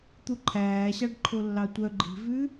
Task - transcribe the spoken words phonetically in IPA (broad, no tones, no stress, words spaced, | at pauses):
t̪uǃʰæːɕɑɖ ǃʰolːɑtʷœ ɡ͡ǃi̤vʉ